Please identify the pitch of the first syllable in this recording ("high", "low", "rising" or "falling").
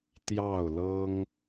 falling